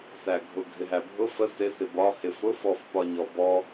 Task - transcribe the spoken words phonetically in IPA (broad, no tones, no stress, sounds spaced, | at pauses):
s æ ɡʱ ʊ ɡʱ ɪ ɦ æ bʱ ʊ f ə s ɪ s ɪ b ɒ h ɪ f ʊ f ɔ f p ɒ ɲ ɔ b ɔ